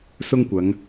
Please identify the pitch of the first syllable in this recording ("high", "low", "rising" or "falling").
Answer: high